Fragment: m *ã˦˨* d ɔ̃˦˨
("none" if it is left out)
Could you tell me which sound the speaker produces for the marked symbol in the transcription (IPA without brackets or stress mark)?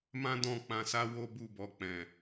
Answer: ã˦